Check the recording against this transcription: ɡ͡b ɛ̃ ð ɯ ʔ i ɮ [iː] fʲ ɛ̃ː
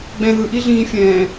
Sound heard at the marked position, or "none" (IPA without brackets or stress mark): ĩː